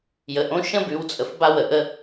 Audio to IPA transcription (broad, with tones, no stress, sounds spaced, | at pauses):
j ə˩ ʔ õ˧˥ ʃ ə̃˥ b ʉ˩˧ w t͡sʼ ə˩ f b a˧ w ə˩ ʔ ə˧